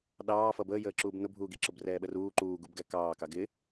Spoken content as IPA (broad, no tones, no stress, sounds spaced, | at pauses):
ɗ ɑː f ʌ b əː j əː ǁ uː b n ʊ bʱ uː ɡ i ǁ ʊ b r ɛː ɓ ə r uː ǃ uː ɡ u b ɡ æ k ɑː k ɑ ɡ ɪ